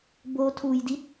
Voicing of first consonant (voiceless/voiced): voiced